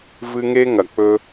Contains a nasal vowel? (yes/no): no